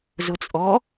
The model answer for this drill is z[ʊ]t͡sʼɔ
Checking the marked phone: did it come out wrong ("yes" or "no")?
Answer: no